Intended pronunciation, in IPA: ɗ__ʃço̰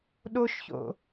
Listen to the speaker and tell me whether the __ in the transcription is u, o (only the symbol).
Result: o